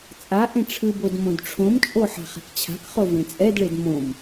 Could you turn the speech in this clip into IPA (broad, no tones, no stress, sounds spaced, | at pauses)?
t͡sʼ a ʔ ẽ ʈ͡ʂʰ ɯ b o d m õ d ʈ͡ʂʰ õ m t͡ʃʼ o ħ a̤ χ ɛ̤ k t͡ɕʰ a̤ k χ o v ẽ t͡sʼ ɛ d ɭ e d m õ m